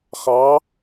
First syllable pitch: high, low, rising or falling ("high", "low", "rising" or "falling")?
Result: rising